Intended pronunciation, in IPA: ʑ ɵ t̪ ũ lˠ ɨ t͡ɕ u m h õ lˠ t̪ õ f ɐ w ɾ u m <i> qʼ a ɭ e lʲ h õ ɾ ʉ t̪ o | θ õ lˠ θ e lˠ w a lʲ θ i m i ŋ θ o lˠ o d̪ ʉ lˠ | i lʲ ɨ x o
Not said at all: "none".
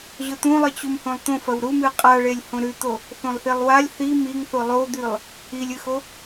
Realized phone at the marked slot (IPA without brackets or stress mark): ɨ